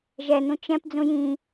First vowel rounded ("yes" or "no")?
no